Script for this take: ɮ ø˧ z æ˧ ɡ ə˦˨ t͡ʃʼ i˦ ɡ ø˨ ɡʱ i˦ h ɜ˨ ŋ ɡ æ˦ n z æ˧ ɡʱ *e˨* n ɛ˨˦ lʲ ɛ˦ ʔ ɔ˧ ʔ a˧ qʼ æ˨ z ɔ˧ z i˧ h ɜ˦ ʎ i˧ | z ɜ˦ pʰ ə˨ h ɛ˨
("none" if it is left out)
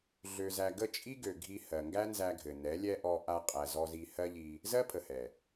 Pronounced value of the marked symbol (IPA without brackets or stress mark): ɘ˨